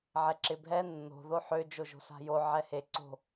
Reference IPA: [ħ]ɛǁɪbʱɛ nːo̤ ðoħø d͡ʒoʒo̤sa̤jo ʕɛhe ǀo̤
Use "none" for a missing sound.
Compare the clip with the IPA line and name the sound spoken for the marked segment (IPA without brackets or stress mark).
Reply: ʕ